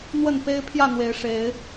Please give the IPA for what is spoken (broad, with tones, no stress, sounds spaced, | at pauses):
n̪ w ə˥˨ n p e˦ ɪ̯ pʰ j ä˥˨ n̪ w e˨˦ ɪ̯ ʂ e˨˦ ɪ̯